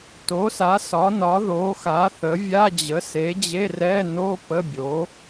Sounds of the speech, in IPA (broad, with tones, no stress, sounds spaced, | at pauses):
t o˩˥ s a˩˥ s ɒ˩˥ n ɒ˩˥ ð o˩˥ x a˩˥ θ ə˩˥ vʲ a˧˥˧ d͡ʑ ə˩˥ s e˩˥ d͡ʑ e˧˥˧ r ɛ˧˥˧ n o˧˥˧ p ə˧˥˧ bʲ o˩˥